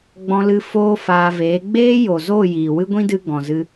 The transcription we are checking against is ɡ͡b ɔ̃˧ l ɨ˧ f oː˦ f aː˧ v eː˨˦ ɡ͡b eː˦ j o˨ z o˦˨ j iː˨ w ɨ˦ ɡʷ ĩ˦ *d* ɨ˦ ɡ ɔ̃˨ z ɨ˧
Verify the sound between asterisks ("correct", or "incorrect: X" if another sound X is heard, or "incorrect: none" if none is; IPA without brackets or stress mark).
correct